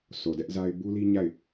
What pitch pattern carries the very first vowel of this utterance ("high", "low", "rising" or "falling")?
low